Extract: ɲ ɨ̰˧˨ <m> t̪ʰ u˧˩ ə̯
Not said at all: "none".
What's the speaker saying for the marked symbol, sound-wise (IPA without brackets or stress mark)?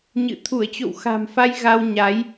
none